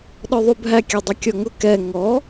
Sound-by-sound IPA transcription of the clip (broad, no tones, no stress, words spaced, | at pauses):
ɗɔðˤubʱæ kʲɑdˤʊkʲɔŋʊ kɛ ŋɔ